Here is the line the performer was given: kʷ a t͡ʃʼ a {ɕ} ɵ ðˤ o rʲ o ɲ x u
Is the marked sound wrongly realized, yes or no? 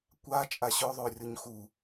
no